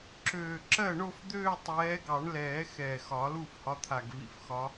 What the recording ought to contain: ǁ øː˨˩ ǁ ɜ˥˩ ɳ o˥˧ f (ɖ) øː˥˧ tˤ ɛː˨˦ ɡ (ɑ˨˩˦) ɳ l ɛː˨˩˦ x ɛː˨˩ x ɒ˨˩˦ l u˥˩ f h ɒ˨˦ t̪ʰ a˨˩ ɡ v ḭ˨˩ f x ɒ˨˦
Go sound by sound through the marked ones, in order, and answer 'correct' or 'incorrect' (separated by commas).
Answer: incorrect, correct